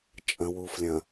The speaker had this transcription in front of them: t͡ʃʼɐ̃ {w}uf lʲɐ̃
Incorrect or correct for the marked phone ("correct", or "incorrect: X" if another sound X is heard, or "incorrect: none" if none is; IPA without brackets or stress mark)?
correct